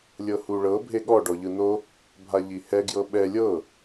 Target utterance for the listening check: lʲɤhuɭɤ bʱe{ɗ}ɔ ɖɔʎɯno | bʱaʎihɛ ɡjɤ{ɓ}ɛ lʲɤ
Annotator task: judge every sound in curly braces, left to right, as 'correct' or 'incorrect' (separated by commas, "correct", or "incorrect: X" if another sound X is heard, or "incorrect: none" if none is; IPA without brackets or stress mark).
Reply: incorrect: ɠ, correct